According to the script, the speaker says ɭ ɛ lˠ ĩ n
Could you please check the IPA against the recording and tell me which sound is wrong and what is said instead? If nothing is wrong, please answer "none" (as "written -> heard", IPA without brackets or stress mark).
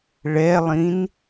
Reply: none